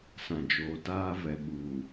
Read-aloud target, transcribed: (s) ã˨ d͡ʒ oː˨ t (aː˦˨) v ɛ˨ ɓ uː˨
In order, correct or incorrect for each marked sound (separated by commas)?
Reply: correct, incorrect